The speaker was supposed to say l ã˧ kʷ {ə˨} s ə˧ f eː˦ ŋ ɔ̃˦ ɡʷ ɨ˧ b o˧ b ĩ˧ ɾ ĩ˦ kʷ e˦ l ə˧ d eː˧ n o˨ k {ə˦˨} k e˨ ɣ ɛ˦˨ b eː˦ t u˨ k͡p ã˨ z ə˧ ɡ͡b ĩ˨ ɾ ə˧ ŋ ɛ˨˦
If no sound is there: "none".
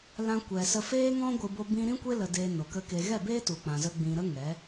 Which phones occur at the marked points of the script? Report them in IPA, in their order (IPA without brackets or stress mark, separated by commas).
ɛ˨, ə˧